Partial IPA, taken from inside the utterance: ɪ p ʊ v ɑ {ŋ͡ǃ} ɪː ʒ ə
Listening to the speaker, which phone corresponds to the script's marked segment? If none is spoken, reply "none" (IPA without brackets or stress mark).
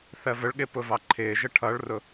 ǃʰ